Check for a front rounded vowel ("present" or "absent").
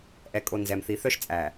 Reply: present